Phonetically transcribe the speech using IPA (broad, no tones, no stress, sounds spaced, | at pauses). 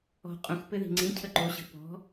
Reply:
ɔ̤ qʼ ũ x p ɘ ð i̤ ŋ͡ǀ ĩ cʰ ə ǃ o ɕ ə̤ p ɔ̤